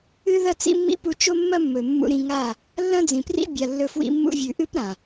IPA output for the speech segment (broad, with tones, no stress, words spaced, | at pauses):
ɨ˦ðɐ˦t͡sḭ˦mːḭ˦ pu˧t͡ʃo˦mːɐ˦ mːɵ˨mːṵ˧ɾĩ˧ŋa˦˨ | lːɐ̃˦d͡zĩ˨prḭ˦ bʲa˨lːɵ˧fwḭ˧ mːṵ˧vʲʉ˨ʔɨ˦p ɾã˨